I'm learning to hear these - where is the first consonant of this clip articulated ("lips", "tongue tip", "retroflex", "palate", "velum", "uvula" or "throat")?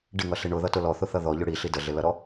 retroflex